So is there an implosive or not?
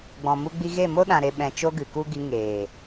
yes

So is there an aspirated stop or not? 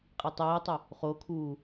yes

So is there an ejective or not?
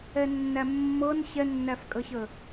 yes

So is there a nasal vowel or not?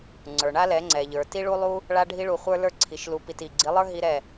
no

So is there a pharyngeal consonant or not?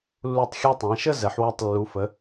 yes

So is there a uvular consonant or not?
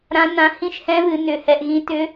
no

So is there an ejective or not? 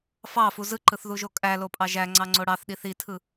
yes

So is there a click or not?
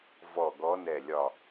no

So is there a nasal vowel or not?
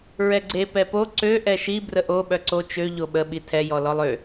no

